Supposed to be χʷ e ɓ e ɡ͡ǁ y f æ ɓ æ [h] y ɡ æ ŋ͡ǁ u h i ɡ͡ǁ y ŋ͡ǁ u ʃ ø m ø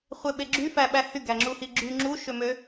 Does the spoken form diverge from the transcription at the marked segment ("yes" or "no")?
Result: no